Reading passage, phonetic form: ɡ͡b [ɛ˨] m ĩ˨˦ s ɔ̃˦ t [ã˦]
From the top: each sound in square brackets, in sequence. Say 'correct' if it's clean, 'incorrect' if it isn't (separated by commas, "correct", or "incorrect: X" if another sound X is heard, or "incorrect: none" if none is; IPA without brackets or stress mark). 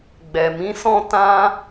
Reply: correct, correct